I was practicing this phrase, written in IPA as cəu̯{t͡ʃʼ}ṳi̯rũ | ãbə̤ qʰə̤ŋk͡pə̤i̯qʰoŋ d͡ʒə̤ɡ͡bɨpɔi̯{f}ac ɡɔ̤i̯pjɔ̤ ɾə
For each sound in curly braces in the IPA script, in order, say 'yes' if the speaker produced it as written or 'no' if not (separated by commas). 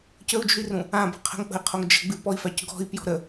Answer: no, yes